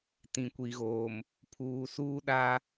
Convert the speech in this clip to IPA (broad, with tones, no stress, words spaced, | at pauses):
tĩ˨kʷi˨ɣoː˨m | pʰuː˨suː˦ɗa˦